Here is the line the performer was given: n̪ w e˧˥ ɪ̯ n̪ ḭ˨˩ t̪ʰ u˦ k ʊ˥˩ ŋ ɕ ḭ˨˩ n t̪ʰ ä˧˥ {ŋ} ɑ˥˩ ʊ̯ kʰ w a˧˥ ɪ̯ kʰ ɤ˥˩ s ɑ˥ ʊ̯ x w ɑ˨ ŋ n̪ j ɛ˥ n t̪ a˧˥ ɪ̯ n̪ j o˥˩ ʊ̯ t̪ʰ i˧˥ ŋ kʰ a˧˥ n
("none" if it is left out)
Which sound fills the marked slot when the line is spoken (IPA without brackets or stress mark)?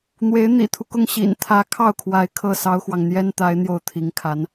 kʰ